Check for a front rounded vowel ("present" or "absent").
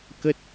absent